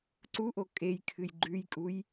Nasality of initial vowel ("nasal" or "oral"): oral